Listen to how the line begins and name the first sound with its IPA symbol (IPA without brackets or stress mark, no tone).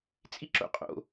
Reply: t͡sʼ